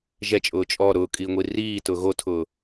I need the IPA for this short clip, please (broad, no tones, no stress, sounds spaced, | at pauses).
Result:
ʒ ɛ t͡ʃʼ ʊː t͡ʃʼ ɔ ɾ ʊː kʼ iː ŋʷ i r iː t ʊː ɣ o tʰ ʊː